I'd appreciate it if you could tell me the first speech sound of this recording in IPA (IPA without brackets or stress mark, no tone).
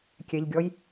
kʲ